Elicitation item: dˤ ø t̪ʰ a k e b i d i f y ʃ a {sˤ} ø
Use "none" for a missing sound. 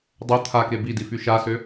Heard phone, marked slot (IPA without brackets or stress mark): s